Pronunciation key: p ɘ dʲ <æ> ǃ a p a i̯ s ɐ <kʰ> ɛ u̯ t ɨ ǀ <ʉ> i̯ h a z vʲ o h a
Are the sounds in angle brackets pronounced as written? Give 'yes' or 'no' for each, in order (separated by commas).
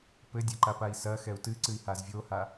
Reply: no, no, no